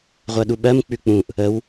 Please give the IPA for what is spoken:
ʁʷɜɗuɓɜm k͡pʉk͡pũʔ | əw

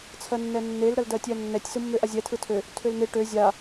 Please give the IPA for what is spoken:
t͡sʰɜnːɛnːel ɾɜldɜtʲɜnːɛtʲ sɯmːøʔazʲɛ tʰɯtʰø | tʰølnɪ ʈø zʲa

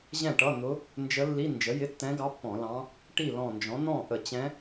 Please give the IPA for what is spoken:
ʑɛ̃˥˩ʈʌ˧˥˧n̪ʊ˧˥ | nd͡ʒə˧˥lːi˧˥˧ nd͡ʒə˩˥jɪ˧˥˧tːɛ̃˧˥ɡɑ˧˥ pːɔ̃˧˩˧lɑ̃˧˥ | ʈi˥˩lɔ̃˧˩nd͡ʒɔ̃˩˥ n̪ɔ̃˥˩ʔə˧˩˧t͡ɕɛ̃˧˥

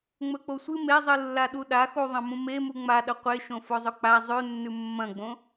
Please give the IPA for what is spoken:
ŋ͡mɵk͡posʷɨ mezˤɨlːa ɗuɗaxu ðˤɐ̃mũmemu ŋ͡maɗɐ qʷeʃõ fozˤɵk͡pa zˤʉnːʉ mːɐ̃ɡ͡bõ

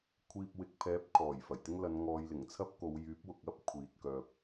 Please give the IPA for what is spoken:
kʷʰiː˧p̚wɪ˨˥k̚pʰɛː˨˥p̚ kʰɔː˨˩jfɐ˨˩jt̪ɪ˥ŋ lɐ˨˧nŋɔː˨jlɪ˨˩ŋt͡sʰɐ˥p̚ ko˨˧wjyː˨˥p̚wʊ˨k̚ɐ˥p̚ kʷʰiː˨t̚kœː˧p̚

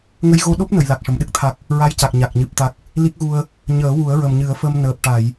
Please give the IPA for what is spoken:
ŋə˧jɣo˧ɗo˦˥p̚ nə˨˩˨j la˨˩k̚ʂə˨˩˨m ɗɨ˦˥k̚t̪ʰa˨˩k̚ | ɹa˧˥jca˨˩k̚ɲa˨˩k̚ ɲɨ˨˩p̚ t̪a˨˩k̚ | li˦˥k̚ɣu˧ə̯ | ɲəː˨˩˦ wu˨˩˦ə̯ɹə˨˩mɲɨ˨˩˦ə̯fə˧m nəː˨˩p̚ʈa˨˩˨j

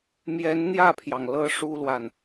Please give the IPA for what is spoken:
mjɛ˧˥nn̪jä˥˩pʰjɑ˩ŋlɤ˧˥ ʂu˥lwa˨n

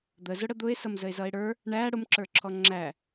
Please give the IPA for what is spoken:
d̪əzʊ ɽəd̪ʊe̯ sʌmzəe̯zʌe̯ɽə˞ | ɳæ ɽʊmǁə˞ǁʰɔ ŋ͡ǁæ

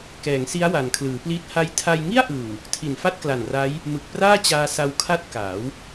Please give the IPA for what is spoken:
kɛː˩˦ŋsi˦˥a̯wa˩˦n kʰlɯː˩˦pliː˦˥t̚ ha˧jtʰa˧jŋi˥˩a̯ʔɯː˨˩w | tʰi˨˩nfa˥˩t̚kla˨˩n ra˦˥j | mɯ˨˩k̚praː˥˩t͡ɕaː˧sa˧w kʰa˥˩t̚kaː˩˦w

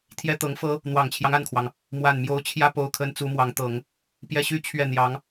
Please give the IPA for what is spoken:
t̪ʰjɛ˥t̪ɤ˧˥ŋfɤ˥ | n̪wɑ˨˩ŋt͡ɕʰjɑ˦ŋa˥˩nkʰwɑ˩ŋ | mwa˥˩nmjo˥ʊ̯ t͡ɕʰjä˥po˧˥ʊ̯kʰə˧˥n t͡su˧˥mwɑ˧˥ŋt̪ɤ˨˩˦ŋ | pjɛ˥˧ɕy˥˧t͡ɕʰɥɛ˥˩ n̪jɑ˧˥ŋ

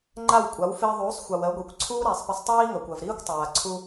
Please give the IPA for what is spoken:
ŋ͡ǃa˥˩wkʷʼa˩˥w fɪː˧ðˤuː˩˥sˤxʷa˩w ɜ˩˥ɡʷi˩kʷ ǀʰuː˥ɾæ˩sˤpɪ˧sˤtˤiː˥ ŋɜ˩kʷɜ˩vɾiː˥kʷtˤaː˩ ǀʰu˧

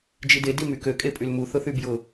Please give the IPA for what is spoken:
d͡ʒide dimykø kʼepʼylmu θʊθybjʊ

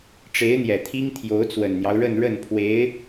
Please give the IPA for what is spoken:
ʈ͡ʂe˧˥ɪ̯n̪jɛ˨˩t̪ʰi˥ŋ t̪ʰjo˧˥ʊ̯t͡swə˨˩nn̪jɑ˦ʊ̯ɻə˥˧n ɻə˥˩npʰwe˧˥ɪ̯

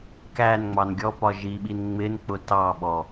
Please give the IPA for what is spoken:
kænŋ͡mɑn ɡʲɔpɒ ʒiɓin ŋ͡mɪnk͡pʊ tɑ ɓɔ

